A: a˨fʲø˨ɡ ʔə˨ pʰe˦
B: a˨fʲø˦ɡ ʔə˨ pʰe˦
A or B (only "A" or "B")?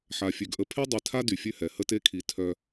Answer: A